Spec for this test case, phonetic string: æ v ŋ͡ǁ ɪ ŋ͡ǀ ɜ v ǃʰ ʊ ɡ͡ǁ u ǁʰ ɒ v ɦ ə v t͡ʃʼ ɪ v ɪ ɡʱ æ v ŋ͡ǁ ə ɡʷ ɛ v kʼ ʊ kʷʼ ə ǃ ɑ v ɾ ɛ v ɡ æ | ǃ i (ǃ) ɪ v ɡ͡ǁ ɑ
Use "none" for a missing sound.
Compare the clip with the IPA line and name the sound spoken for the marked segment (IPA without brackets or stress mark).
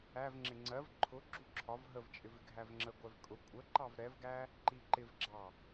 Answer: ǃ